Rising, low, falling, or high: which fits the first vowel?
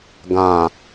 low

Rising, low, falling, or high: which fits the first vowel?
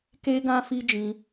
high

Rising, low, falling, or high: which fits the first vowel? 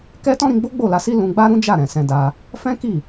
high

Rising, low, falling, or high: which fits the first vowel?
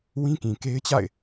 high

